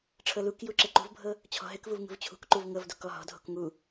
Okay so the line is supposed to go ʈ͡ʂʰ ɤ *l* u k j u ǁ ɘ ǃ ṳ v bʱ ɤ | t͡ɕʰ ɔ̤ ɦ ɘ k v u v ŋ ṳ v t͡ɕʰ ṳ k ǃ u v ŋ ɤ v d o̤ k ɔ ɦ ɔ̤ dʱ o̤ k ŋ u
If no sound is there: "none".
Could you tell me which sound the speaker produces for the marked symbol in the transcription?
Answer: l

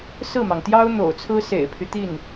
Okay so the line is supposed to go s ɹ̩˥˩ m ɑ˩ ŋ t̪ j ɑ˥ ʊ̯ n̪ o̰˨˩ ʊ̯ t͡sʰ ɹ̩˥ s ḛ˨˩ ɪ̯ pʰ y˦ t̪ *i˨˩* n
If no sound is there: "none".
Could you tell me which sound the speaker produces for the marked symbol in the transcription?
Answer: i˥˩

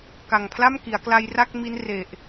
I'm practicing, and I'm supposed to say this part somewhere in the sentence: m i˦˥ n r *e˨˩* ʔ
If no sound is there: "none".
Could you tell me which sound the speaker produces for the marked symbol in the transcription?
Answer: e˨˩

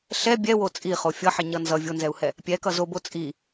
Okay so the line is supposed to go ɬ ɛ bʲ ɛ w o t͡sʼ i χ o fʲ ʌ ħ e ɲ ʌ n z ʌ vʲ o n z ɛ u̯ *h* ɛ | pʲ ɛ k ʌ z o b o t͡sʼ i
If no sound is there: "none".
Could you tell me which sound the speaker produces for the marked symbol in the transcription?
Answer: h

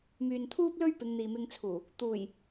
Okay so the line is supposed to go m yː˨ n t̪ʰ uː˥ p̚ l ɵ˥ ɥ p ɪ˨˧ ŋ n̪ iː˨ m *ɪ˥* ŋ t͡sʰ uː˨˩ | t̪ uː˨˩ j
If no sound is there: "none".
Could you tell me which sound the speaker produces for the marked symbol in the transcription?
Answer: ɪ˧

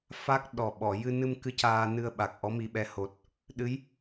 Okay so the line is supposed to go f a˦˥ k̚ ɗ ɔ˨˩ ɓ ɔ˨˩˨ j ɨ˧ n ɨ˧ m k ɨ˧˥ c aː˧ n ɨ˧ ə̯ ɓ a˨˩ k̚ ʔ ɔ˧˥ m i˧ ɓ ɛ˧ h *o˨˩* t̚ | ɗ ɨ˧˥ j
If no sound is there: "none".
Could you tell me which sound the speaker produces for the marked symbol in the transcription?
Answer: o˨˩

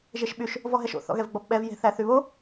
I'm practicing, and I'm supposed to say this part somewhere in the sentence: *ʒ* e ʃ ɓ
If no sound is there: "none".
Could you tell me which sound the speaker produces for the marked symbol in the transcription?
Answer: ʒ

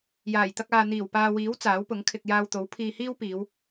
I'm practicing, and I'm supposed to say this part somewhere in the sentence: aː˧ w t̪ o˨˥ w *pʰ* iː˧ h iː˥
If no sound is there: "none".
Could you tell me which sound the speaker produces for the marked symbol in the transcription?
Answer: pʰ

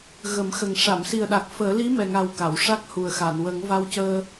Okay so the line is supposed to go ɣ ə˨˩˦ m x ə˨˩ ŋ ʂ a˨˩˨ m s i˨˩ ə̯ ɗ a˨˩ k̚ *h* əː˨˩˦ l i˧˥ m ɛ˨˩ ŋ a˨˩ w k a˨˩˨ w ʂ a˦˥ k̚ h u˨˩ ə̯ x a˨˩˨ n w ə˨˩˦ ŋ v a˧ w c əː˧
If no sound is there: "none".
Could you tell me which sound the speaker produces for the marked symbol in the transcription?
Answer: f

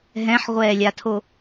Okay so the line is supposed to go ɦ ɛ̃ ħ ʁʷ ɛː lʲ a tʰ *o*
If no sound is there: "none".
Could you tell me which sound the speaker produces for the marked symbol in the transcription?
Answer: o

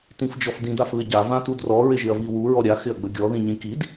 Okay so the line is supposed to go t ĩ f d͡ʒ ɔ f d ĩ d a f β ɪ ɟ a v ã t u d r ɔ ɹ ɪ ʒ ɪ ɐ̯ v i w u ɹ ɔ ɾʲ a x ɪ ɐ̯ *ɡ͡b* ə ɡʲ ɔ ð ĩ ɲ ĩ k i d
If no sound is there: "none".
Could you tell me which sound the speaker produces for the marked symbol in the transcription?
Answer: ɡ͡b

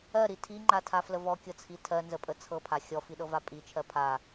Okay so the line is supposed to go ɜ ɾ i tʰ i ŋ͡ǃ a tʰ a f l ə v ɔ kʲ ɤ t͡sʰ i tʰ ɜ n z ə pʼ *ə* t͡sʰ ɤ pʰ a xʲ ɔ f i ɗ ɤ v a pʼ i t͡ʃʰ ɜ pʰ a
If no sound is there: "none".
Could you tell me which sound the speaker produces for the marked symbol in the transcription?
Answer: ə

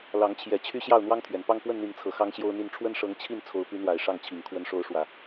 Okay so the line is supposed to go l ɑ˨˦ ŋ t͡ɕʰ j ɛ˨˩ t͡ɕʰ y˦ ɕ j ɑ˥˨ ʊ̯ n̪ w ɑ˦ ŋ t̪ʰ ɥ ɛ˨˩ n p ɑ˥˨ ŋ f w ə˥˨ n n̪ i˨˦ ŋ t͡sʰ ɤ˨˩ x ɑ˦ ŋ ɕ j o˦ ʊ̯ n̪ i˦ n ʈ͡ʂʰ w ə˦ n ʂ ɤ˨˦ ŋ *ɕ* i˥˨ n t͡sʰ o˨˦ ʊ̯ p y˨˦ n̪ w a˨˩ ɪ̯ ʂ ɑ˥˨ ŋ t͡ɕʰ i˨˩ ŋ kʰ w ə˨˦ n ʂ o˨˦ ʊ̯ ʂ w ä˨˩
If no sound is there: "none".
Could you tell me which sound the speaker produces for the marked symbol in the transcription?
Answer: t͡ɕʰ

